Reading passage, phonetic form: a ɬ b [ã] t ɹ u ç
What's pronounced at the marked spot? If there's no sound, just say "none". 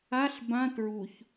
ã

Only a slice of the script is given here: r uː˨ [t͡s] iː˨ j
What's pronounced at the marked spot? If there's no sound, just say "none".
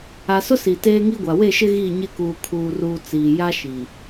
t͡s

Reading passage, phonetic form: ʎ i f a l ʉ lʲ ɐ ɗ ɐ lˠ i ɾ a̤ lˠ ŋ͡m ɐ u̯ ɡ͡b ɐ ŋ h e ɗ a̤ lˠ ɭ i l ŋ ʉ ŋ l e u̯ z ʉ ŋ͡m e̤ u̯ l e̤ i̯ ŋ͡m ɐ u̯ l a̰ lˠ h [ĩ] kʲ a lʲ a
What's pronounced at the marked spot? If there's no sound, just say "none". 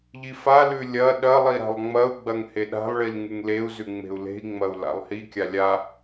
i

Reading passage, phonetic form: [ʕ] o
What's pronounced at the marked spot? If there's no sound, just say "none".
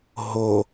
ɦ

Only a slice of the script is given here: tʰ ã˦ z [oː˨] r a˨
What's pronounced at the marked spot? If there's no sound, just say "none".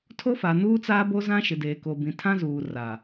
uː˨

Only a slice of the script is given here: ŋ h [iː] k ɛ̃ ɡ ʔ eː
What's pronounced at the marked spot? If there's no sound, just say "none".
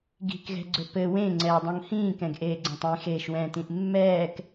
ĩː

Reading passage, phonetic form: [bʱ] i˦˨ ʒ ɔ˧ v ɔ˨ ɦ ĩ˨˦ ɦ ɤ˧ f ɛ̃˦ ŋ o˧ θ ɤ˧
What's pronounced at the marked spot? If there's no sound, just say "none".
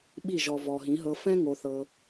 ɓ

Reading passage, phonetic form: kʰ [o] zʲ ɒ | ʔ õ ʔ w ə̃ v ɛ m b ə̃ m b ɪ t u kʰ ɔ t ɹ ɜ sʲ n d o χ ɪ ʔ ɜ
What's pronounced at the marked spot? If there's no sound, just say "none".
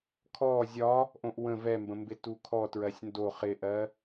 ɔ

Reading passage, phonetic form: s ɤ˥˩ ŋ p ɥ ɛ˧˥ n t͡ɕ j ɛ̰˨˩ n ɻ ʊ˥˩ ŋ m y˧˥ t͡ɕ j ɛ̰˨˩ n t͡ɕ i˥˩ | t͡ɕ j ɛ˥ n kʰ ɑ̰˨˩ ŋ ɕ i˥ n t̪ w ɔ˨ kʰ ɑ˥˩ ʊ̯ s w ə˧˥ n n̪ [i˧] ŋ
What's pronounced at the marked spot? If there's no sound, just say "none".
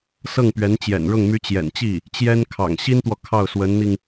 i˧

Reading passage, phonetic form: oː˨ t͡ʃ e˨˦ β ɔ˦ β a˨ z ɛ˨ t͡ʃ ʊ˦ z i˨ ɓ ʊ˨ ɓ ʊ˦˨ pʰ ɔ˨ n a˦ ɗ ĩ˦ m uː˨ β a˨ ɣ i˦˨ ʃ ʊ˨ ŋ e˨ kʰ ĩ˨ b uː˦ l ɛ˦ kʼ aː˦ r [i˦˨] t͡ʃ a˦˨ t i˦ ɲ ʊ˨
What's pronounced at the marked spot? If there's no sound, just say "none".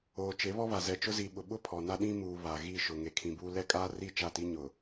i˦˨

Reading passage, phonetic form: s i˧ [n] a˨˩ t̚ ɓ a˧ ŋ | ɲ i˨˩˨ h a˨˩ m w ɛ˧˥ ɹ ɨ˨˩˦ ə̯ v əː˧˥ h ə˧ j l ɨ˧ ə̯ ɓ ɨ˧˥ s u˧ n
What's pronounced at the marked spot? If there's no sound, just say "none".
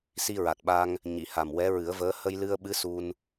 ɹ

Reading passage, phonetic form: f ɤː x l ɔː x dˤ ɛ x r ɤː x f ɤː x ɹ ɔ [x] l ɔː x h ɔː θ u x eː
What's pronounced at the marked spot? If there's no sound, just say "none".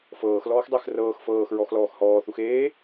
x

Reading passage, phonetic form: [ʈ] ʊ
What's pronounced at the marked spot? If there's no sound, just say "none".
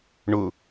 ɳ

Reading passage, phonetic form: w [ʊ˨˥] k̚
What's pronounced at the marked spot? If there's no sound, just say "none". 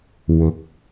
ʊ˨˥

